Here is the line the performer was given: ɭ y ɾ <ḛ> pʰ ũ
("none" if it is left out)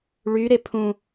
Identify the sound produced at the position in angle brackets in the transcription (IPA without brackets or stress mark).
e